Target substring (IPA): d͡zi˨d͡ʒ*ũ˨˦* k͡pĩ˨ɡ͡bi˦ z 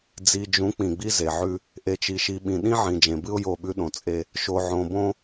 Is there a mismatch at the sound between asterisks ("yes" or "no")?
no